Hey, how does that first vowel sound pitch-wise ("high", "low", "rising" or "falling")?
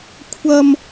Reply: high